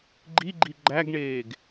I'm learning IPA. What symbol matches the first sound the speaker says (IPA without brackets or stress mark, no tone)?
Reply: ɡ͡ǃ